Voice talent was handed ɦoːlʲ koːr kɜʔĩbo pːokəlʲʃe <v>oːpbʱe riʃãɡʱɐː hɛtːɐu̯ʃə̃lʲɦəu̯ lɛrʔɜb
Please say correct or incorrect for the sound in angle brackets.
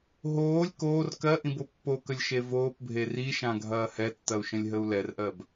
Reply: correct